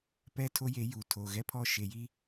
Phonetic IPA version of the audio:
pɛ˦tʰo˦je˨˦juː˨ tʰo˨ɣɛ˦pʰɔ˦ ʃe˨ji˦

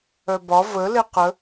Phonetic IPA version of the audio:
œbɒ və leqə

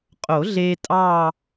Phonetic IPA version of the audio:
qʼo˨˩˦ɮe˧ tʼɑ˥˧

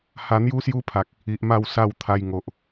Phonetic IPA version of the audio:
ha˧n̪ju˦sju˦pʰa˨k̚ | i˨ʔma˥˧wsa˥˧wt̪ʰa˧j ŋo˨ʔ

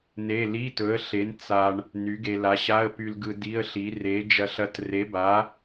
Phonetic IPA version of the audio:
ne˧˥˧ li˧˥˧tɵ˨˥ə̯ɬe˨˥n t͡sa˧ɳ | ny˨˥ɡe˧ la˨˥ɕa˧˥˧ə̯py˧lɡɯ˧ di˧˥˧ə̯ɬi˨˥ re˨˥ d͡ʒɐ˧ɬɐ˧tre˨˥ba˨˥

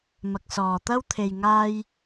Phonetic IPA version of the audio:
mɐ˨k̚sɔː˨t̪ɐ˥wt̪ʰe˧j ŋaː˥j

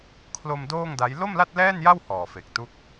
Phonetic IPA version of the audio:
kʰlo˧m doː˥˩ŋda˦˥j lo˥˩mla˥˩t̚lɛː˥˩nja˥˩w hɔː˨˩fe˨˩k̚tu˦˥k̚

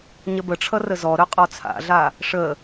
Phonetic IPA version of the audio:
ɲəbəʈ͡ʂʰʌ rəzɔɾœ qʼɔt͡sʰa̰ɮa | ʂə

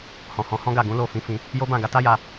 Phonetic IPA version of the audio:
hɔ̃˨hɔ̃˨˦hɔ̃˦ɡa˦˨ ɡũ˨˦lo˦˨fĩ˧fĩ˧ | jo˦bã˦˨ ɡa˧ta˦ja˧

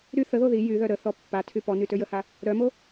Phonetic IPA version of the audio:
ɾy θəðo ði jyðœ ɾəθɔ pːatʰy pɔny tøjəha | ɾœmo

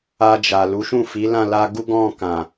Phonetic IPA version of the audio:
a˧d͡ʒa˨ lu˨˦ʃũ˦˨fi˨˦ lã˦˨la˧ɡu˦ ɡɔ̃˦˨kã˨

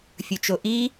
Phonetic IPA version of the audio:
fʲɵt͡ʃoʔi

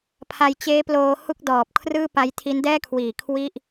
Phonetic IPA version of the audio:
pʰa˧j t͡ɕeː˦˥ploː˧ hu˥˩k̚dɔː˨˩p̚ kʰrɯː˥˩pa˦˥jtʰi˦˥n dɛː˥˩kʰwiː˨˩ kʰwi˥˩ʔ

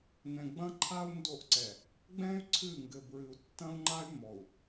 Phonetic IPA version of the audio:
nɛ̃˨ɡ͡bɐ̃˦ǃʰa˦u̯ ndo˦˨ʔǀɛ˨ | ɡ͡bɛ̃˦y̯ ǀʰɨ˦˨ ŋɡɘ˨bɹɨ˨u̯ tːɐ̃˦u̯ŋ͡ǃa˦y̯ mɔ˨u̯

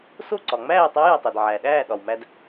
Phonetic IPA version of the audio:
so˥˨ǀɒ˩ŋ͡mæː˥˨ tˤæ˧˥jæ˩tˤe˩d ʕæ˩ɗæː˥˨ ɗɒ˩wmæ˧d

